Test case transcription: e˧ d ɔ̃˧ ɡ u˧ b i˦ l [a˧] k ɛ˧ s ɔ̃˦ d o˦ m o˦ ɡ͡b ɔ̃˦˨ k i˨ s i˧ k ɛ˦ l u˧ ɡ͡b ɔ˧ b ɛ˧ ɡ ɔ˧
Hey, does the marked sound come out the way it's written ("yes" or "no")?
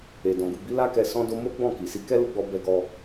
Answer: no